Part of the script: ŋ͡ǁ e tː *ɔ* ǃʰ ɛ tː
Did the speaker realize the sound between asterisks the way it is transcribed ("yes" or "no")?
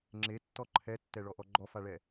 yes